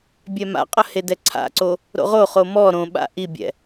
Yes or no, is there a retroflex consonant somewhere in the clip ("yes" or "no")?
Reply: no